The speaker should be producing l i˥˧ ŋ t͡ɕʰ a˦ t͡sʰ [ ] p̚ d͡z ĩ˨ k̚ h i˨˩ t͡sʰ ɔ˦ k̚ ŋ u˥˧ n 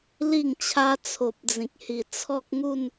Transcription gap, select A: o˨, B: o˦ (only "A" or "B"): A